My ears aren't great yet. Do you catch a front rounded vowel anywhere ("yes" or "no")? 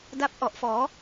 no